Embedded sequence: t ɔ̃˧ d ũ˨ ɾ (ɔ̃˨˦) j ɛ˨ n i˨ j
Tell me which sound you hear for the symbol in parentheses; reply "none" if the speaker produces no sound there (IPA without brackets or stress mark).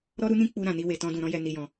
ɔ̃˧